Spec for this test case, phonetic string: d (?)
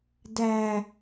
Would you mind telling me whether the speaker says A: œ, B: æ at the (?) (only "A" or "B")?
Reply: B